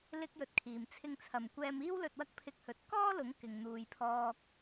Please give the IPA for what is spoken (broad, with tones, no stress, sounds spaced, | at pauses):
l ɪ˥ k̚ j ɵ˧ t̚ kʰ iː˨ m t͡sʰ ɪ˧ ŋ t͡sʰ ɐ˨˩ m kʷ ɛː˧ m iː˥ w l ɵ˧ t̚ w ɐ˥ k̚ pʰ ɪ˥ k̚ h ɵ˧ t̚ k ɔː˥ l ʊ˨˥ ŋ k ɪ˨ ŋ n̪ uː˨ j pʰ ɔː˧ k̚